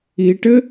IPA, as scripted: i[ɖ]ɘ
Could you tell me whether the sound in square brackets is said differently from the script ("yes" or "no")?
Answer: yes